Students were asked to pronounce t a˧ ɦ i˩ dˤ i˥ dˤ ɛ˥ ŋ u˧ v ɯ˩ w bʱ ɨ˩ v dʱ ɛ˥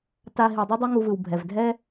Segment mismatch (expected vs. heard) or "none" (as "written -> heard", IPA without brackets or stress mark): ɨ˩ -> ɛ˩